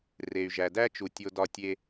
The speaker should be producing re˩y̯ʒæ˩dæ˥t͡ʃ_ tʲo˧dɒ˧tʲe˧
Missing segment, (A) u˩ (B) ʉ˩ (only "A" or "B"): A